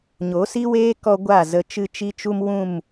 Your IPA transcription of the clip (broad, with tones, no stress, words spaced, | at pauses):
ɲo˨˦si˦weː˦ kɔ˦ɡʷa˦˨zə˧ t͡ʃɨ˦t͡ʃi˦t͡ʃu˦mwũ˦˨m